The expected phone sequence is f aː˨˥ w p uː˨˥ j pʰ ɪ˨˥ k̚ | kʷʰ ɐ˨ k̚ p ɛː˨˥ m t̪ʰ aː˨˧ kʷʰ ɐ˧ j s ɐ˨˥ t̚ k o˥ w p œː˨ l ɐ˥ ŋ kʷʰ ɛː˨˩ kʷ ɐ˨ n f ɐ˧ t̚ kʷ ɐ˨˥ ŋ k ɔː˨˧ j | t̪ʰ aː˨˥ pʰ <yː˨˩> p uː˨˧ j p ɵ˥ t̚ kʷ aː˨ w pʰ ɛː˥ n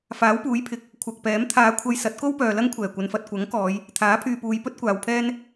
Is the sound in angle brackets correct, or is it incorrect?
incorrect